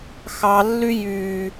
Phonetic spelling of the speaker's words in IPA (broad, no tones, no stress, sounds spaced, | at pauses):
x ɑ lː y j y